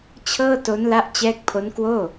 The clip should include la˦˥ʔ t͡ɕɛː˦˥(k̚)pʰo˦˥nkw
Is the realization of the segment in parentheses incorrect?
no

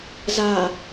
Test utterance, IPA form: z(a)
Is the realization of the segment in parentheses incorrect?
no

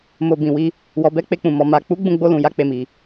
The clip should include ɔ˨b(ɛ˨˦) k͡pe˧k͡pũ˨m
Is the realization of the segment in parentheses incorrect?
no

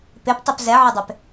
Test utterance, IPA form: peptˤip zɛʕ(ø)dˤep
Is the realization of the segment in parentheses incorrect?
yes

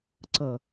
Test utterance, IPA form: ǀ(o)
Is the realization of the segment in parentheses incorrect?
yes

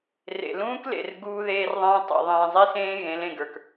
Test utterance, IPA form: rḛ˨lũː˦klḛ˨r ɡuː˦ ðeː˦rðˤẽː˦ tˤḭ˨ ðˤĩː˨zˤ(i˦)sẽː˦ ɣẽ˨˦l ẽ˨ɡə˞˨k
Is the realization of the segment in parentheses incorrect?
no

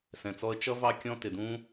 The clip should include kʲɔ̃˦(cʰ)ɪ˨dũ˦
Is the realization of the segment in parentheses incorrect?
yes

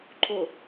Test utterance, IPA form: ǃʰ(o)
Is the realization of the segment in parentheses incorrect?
no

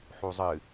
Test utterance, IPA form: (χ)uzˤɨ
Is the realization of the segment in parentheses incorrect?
yes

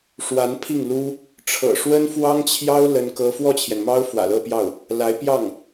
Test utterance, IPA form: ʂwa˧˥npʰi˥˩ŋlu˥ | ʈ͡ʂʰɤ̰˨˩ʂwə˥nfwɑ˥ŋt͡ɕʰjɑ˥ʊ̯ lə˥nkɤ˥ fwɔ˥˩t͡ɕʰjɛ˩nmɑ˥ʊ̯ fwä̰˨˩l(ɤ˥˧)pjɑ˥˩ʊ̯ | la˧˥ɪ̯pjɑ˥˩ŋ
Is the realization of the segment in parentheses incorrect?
no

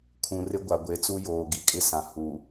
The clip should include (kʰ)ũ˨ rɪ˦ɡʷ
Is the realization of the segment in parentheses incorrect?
no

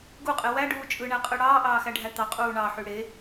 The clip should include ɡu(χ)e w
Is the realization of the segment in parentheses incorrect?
yes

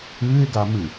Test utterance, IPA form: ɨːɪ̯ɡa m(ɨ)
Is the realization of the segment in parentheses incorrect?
no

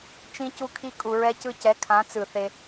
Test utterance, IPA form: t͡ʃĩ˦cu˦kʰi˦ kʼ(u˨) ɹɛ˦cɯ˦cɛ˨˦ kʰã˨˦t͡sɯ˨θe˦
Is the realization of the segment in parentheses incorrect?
no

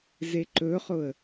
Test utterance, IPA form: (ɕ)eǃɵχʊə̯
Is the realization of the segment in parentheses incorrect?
yes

